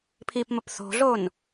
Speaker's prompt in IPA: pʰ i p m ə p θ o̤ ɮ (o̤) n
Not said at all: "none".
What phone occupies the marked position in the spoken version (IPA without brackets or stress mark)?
o